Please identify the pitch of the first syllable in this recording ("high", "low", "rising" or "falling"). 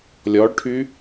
rising